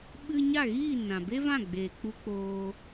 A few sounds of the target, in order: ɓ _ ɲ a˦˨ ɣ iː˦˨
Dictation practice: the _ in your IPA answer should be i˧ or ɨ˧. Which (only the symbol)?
ɨ˧